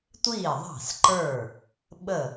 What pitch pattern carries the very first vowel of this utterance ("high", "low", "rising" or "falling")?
falling